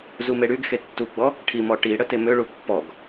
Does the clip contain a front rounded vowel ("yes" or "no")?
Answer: yes